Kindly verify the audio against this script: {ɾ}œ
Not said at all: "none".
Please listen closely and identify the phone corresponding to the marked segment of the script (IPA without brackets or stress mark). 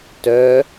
t